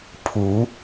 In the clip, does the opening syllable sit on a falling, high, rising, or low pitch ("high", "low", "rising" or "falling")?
rising